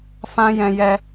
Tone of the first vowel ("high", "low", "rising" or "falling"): high